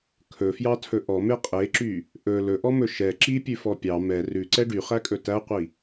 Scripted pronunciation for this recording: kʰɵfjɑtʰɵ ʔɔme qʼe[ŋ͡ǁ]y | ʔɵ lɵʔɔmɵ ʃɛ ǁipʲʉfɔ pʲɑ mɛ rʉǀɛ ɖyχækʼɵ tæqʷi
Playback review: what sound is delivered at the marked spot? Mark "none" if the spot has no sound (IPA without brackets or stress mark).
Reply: ǁ